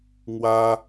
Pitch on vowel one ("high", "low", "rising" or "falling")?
high